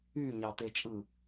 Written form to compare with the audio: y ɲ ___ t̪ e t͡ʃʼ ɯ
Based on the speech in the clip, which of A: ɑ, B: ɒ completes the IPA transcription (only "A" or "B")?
A